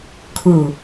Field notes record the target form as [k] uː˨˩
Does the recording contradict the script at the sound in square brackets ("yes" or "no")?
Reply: yes